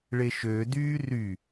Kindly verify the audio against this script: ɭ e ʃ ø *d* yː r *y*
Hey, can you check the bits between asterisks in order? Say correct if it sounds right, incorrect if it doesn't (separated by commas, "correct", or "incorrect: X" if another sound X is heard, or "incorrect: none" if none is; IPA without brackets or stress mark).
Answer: correct, correct